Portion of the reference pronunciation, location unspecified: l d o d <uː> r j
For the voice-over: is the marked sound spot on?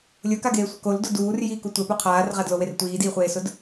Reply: yes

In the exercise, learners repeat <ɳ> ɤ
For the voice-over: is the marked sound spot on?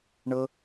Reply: yes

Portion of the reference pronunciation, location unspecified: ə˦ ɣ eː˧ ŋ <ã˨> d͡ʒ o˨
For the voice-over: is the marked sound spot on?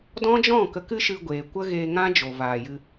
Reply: no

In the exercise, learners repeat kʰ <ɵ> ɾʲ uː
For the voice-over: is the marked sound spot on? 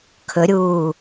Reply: yes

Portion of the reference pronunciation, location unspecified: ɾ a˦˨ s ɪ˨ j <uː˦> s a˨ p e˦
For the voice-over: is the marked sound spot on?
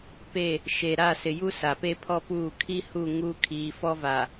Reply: no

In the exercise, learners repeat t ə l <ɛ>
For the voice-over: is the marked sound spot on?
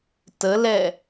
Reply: yes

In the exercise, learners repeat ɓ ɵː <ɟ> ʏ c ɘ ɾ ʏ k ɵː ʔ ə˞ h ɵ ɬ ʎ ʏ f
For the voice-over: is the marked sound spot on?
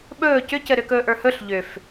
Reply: no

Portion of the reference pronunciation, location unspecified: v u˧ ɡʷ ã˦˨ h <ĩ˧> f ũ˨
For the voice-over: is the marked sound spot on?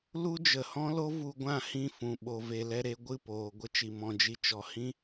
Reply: no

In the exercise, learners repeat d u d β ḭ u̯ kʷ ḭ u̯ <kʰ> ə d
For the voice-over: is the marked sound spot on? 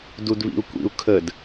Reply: yes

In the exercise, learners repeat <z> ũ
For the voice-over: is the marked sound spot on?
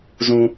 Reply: yes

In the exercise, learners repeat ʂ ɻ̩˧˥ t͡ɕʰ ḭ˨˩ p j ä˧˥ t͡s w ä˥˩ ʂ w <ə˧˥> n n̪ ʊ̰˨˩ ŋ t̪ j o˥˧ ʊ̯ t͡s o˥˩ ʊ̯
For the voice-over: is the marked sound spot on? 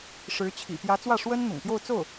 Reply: no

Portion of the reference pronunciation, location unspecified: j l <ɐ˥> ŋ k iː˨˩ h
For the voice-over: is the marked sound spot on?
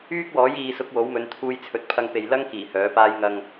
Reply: yes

